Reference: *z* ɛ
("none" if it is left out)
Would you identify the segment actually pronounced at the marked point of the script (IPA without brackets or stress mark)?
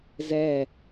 z